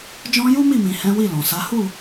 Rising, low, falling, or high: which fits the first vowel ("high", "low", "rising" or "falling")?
high